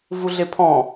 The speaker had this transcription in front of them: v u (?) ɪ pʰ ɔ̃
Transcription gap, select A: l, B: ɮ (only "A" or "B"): B